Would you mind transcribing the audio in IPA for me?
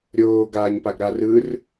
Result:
ɾʲoːɡaːɲpaɡɾa rɯr

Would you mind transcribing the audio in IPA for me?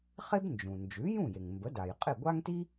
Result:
χe˥bnd͡ʒũ˩ nd͡ʒʉ˩˥jũ˥˩je˩ŋmbə˩˥ da˩jqʼɪ˥˩ ɡʷa˥ŋti˥

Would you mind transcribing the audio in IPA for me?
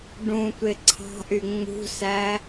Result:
ɖũtʷe ǀʰɑ̤ʔy ŋ͡mṳsæ

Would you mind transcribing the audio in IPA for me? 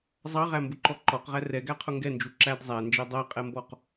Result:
zˤɑʁæmbʊǃɔ ǃɔqʁæ rɛɡæqʰʊ ŋɡɛnd͡ʒu ǁæd zˤænd͡ʒɛ dˤæqʼɛmbɔq

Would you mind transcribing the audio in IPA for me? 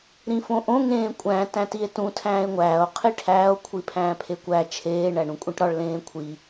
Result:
ɾĩfõʔõ ŋẽːkʷʼæ̃ tæ̃tie̯tũ tʰæ̃ːe̯ŋʷæːo̯ qʰiʈʰæːo̯ kʷʰipʰæ̃ːpʰekʷæ t͡ʃʰeː ɳæɳũkʷʼĩʈɾɒɭ lẽːkʷʰi

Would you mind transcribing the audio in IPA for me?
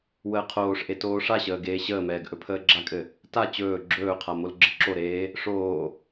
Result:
wəːqʰoːʂʔe toːʂaɕəː ɡeːɕəːmɛːɡ ʔɵpʰəːɡ͡ǁakʼɘ | ta t͡ɕɵː ɡ͡ǁɵːqʰa molɡ͡ǁəǁoɾeː | ʂoː

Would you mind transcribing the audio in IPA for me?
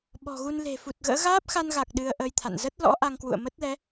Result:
ɓɔ̤˨˩ɣu˧n le̤˨˩fu˨˩t̚ɣə̰ː˧˥ ɣaː˦˥p̚xa˧nɣa˨˩k̚ ɗɨ˧ə̯ʔəː˧j t̪ʰa̰˧˨n zə˦˥t̚lɔ̰˧˥ ʔa˧ŋkwṵ˧˨ə̯mə˦˥t̚lɛ˨˦

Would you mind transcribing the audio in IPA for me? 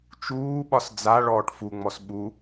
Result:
t͡ʃuːɓɒs d͡zaɭɔːʈ fuŋ͡mɔs ɓu

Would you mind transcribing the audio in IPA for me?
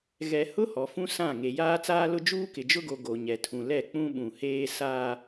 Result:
ɣɛ˨ hʊ˦ hɔ˨fũ˦sã˦˨ ŋe˨jaː˦t͡saː˦lʊ˦ d͡ʒuː˦kɪ˨d͡ʒʊ˦ɡo˨ ɡo˨ɲɛ˨tʰũ˨ lɛ˦˨k͡pũ˦ɓũ˨heː˦ saː˦

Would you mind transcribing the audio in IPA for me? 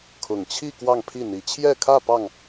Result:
kʰʊ˨˩ŋt͡ɕʰi˥˧ kwɑ˥˧ŋpʰi˥˩n̪i˧˥ t͡ɕʰjɛ˥˧kʰä˥˧ pɑ˥˩ŋ

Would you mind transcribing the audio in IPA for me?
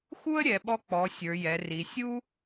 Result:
xu˥ə̯ɾʲɛ˩˧ɓɔ˧k͡pɔ˩˧ sʲə˞˩˧jɛ˩˧ri˩˧ sʲu˥

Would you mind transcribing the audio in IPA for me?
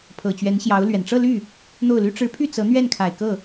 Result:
pʰɤ˨˩t͡ɕɥɛ˧˥nɕjɑ˧˥ʊ̯ lɥɛ˨˩n ʈ͡ʂɤ˥˧ly˥˩ | n̪o˥˩ʊ̯ly˥ ʈ͡ʂɻ̩˧˥pʰy˥˩ t͡sɤ˧˥n̪ɥɛ˥˩nkʰa˨˩ɪ̯ kɤ˥˩

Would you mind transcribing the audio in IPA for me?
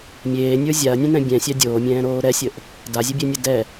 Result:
mʲeːnʲə˞ zʲaɐ̯nʲẽnɛ̃ bʲɛ̃sʲa dʲoːmʲɛ̃ːɾoː ɾɛsʲəʔ | dazʲəbʲenʲə dɛ

